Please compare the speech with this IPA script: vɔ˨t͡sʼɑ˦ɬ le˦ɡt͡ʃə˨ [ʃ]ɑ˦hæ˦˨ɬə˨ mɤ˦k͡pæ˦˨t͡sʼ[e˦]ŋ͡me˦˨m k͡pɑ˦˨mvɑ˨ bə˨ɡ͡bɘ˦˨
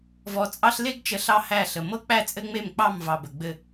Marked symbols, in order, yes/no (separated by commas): no, no